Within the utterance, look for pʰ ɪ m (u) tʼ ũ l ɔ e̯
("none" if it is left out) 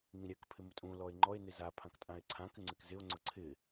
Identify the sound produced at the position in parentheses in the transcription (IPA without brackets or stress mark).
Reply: ʊ